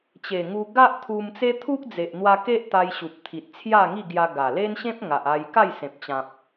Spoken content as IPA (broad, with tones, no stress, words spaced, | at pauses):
t͡ɕe˨˩ŋu˧ ɡa˦ʔt̪ʰu˧m t͡se˦t̪ʰu˦k̚d͡ze˨ʔ n̪wa˧ke˦ʔ t̪a˧j ɕu˨p̚ t̪ʰi˨t̚t͡sʰja˥˧ŋi˥˧ɡja˧ ɡa˨˩le˦nɕẽ˦p̚ ŋa˨ʔa˧j ka˥˧jsẽ˨p̚t͡ɕã˨p̚